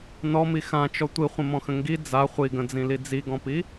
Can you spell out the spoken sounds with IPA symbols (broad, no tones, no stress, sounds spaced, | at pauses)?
n ɔ m i x ã t͡ʃ ɔ tʷ i χʷ ə̃ m ɔ̃ x ə̃ ŋ ɡ i d͡z a χʷ i ɡ ə̃ d͡z ĩ l i d͡z i ɡ ɔ̃ p i